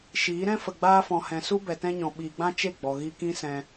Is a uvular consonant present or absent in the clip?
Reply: absent